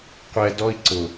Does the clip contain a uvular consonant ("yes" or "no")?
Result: yes